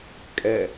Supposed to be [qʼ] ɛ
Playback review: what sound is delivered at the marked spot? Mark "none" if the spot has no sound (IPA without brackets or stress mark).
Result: kʼ